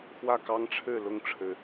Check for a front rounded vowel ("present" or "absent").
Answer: absent